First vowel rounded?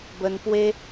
no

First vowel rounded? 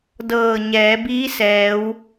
no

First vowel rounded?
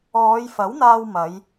yes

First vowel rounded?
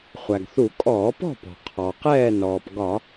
no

